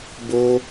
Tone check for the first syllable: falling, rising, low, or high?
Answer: high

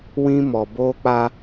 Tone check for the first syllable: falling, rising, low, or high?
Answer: high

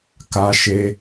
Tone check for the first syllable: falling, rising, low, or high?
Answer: high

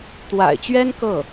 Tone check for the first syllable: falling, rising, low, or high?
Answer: low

